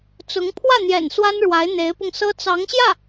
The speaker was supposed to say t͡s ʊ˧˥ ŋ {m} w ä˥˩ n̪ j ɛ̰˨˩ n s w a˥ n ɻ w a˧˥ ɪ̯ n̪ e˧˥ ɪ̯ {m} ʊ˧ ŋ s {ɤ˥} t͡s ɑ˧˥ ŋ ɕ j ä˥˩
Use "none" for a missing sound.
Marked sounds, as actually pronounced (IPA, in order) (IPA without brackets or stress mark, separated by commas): pʰ, p, ɤ˥